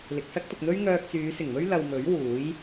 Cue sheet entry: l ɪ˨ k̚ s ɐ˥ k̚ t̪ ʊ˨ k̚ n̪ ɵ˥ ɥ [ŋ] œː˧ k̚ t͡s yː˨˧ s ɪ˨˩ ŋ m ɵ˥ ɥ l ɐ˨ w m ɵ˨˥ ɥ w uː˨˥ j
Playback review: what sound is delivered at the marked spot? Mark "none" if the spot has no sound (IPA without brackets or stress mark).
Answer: ŋ